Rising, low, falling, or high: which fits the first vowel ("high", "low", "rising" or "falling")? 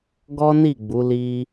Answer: high